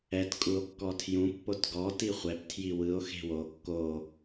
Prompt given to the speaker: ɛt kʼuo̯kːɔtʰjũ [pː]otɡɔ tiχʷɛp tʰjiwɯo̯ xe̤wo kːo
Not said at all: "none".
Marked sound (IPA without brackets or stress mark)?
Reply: pː